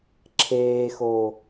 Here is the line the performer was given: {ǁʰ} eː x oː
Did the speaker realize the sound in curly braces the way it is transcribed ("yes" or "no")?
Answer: yes